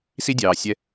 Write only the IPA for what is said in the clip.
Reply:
si˥dʲɑː˨sʲɛ˦

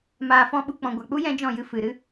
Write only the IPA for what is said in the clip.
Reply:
maː˨fɔ̃˧ɓu˨k͡pɔ̃˨ ɡʷa˨k͡pu˦ jɛ̃˦d͡ʒɔ̃˦˨jɨ˧ fɨ˨ ɾɨ˦

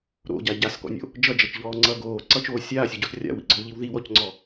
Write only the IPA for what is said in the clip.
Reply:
ɾo̰ɟa ɟaskɔ̰nʲo̰ | d͡ʒʌd͡ʒʌt͡ʃʎɔːŋ͡ǀʌː ɡoːǀʌt͡ʃoː sʲaːsʲoɟos rʲa̰wḭɡ͡ǀɔwʎiw ðiwɔcŋ͡ǀɔ

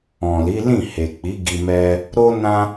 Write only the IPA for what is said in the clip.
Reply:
ɔ̃˨li˨˦ lĩ˦˨he˨k͡pi˨˦ ɡi˧mɛ˦ | ɾo˦nã˦

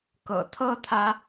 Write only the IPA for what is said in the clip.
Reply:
kɤ̰˨˩t̪ʰɤ˦t̪ʰä˨˦

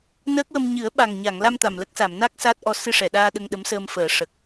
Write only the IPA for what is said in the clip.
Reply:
nəː˦˥k̚wə˧m ɲɨ˨˩˦ə̯ ɓa˨˩ŋɲa˨˩˨ŋla˧m t̪a˨˩mlə˦˥k̚sa˨˩˨m na˦˥k̚ sa˦˥t̚ʔɔ˧˥ sɨ˧ʂɛ˨˩˨ɗaː˧ ɗə˧ŋɗə˧˥msəː˧mfəː˨˩˦ ʂə˨˩k̚

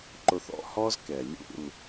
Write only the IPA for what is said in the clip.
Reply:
ǃʊ˧θɔ̰˦hɔ˦zkɛ˨ lʲṵ˦˨l

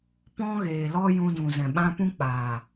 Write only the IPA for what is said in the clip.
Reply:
pɔ̃˦ɣeː˨lɔ˦ jũ˧dũ˨zɛ̃˨ ɓã˧pũ˦k͡paː˨

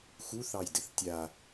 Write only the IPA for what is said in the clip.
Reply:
xuθɑjdɘθ tʲa

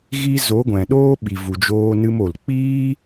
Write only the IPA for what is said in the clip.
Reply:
ɣi˦ zo˨˦ɡʷɛ̃˨ɗoː˦ ɓi˨vu˨d͡ʒoː˧nɨ˧m o˨lk͡piː˦

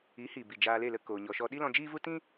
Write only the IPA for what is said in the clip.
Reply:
i˨˦hi˨bi˨ d͡ʒaː˧le˦˨lə˦ koː˧ɲɔ˧ʃɔ˦ ɗi˦lɔ̃˧d͡ʒiː˦vu˦ tĩ˦

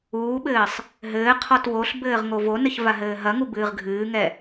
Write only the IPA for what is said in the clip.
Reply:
uːɓɘːsˤ | ɦɘːqʰɔt woɬbɘːʁ ŋovonɘç vaɦɘːɦɐŋu bɨːʁɡʱɨːŋɛ

